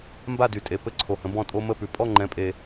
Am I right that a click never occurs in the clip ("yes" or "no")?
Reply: no